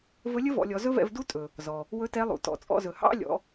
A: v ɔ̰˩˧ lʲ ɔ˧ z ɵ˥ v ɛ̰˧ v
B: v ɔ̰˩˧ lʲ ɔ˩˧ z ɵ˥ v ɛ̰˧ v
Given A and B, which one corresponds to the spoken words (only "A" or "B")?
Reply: B